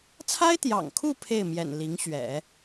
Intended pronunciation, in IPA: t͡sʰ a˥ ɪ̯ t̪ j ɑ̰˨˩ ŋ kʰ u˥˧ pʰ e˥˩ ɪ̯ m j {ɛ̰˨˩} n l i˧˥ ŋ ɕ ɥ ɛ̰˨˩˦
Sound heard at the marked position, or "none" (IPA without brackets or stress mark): ɛ̰˨˩